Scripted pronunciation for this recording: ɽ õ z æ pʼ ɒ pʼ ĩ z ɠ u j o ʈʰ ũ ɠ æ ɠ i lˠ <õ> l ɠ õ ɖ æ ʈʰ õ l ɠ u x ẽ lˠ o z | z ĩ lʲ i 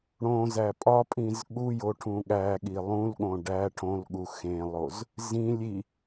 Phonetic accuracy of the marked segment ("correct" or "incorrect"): incorrect